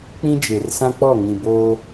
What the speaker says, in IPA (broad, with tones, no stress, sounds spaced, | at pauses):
k͡p ĩ˦ d͡ʒ e˨ r s ã˦ k͡p ɔ˦˨ ŋ ĩ˨ b oː˦